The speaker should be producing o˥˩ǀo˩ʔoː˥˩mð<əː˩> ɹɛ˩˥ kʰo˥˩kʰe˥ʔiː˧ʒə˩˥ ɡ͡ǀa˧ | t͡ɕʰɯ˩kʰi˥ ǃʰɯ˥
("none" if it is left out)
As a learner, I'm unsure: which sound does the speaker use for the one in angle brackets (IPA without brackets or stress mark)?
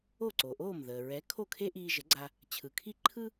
əː˩